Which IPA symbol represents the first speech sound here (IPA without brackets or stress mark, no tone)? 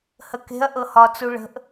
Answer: h